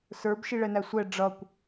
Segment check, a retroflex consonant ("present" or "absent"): present